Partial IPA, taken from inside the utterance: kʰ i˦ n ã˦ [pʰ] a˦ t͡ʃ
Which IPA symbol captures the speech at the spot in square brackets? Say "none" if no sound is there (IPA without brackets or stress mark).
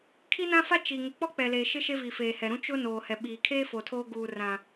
f